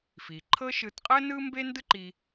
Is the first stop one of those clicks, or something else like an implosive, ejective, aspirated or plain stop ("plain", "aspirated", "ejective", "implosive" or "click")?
click